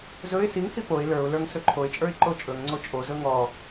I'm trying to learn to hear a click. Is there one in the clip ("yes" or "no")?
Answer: yes